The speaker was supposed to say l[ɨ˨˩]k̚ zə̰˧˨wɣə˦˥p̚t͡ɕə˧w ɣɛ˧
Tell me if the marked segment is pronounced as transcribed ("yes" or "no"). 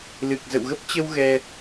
yes